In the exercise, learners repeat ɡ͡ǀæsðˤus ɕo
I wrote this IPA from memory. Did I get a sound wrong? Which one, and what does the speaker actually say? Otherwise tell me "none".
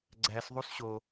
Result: none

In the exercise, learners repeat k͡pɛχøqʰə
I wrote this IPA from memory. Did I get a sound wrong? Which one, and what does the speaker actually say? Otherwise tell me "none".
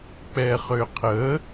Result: none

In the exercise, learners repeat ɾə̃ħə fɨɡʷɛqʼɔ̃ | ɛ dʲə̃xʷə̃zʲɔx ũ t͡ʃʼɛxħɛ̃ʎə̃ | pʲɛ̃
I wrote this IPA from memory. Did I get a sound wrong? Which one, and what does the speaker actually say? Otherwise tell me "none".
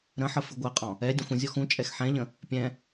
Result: none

